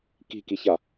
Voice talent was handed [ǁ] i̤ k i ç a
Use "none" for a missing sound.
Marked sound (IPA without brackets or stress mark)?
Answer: k